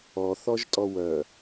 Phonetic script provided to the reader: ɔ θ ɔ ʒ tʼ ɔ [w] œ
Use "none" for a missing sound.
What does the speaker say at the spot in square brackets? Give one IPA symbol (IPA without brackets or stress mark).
w